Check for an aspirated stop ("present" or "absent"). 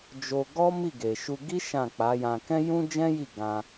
absent